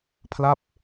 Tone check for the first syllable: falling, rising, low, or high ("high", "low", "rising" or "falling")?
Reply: falling